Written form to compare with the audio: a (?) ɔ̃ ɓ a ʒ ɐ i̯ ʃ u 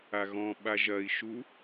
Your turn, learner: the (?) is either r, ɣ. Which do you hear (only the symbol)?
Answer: ɣ